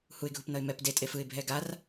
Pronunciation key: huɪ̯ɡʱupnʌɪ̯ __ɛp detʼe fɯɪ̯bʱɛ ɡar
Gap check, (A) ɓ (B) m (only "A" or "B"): B